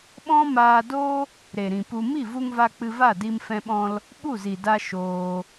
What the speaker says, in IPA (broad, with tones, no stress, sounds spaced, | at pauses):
ɓ ɔ̃˦ m aː˧ d o˦ | ɾ e˨ ɾ ĩ˨ p u˧ m i˦˨ v u˧ ŋ v a˧ k͡p ɨ˧ v a˦˨ d i˧ m f ɛ̃˧ ɓ ɔ̃˧ l | ɓ u˦˨ z i˨ d a˧ ʃ oː˧